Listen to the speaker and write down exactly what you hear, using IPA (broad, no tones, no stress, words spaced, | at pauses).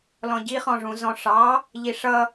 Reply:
lɔ̃ɟiχɔ̃ʐũ zɔ̃ʂɑ | ʎiʂʌ